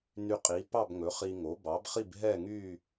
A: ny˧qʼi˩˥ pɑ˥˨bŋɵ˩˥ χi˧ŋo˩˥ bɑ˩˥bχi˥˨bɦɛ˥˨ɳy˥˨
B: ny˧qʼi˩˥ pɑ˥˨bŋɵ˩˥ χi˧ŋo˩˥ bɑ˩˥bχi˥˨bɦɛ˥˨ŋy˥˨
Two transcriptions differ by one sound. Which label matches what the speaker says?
B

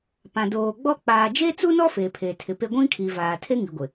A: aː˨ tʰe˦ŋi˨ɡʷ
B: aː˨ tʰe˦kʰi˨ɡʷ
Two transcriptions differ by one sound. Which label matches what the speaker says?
A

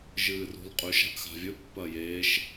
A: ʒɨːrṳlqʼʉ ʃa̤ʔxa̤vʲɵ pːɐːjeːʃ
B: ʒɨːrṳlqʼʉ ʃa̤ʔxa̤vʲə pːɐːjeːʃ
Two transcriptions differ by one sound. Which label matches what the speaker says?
A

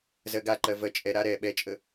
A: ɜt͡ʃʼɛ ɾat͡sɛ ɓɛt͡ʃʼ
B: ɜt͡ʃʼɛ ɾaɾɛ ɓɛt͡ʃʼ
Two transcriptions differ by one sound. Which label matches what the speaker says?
B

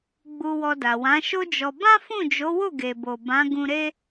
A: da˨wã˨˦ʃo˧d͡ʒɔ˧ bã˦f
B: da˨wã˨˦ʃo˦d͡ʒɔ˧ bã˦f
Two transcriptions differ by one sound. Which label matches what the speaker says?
B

